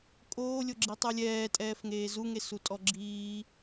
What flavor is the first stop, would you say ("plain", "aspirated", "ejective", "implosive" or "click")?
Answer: ejective